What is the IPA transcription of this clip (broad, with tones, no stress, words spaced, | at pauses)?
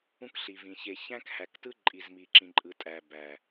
ũ˦kɬi˨vĩ˨ çe˨çæ̃˦khæ˨ktɯ˦ ǃʼi˨zmi˨ǁĩ˨ǃʼɯ˨ tʼæ˨bæ˨